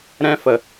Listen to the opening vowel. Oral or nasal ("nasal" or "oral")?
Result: nasal